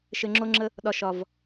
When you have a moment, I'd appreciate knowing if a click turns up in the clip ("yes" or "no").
yes